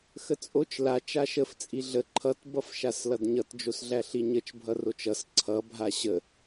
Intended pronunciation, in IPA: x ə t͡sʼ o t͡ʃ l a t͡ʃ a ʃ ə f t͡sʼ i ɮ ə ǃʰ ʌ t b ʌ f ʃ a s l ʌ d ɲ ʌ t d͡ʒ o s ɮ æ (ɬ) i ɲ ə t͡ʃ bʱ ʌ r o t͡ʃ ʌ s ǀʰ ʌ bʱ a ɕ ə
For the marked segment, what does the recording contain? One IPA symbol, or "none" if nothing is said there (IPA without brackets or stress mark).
ɬ